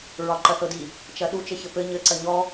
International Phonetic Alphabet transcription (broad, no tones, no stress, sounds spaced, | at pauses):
ɹ ɒ ǃ ɐ θ ɤ d i | t͡ʃ ɐ ɗ u t͡ʃ ɘ ç ɘ p ɘ ɲ ɘ ǀ ɐ ɲ ɔ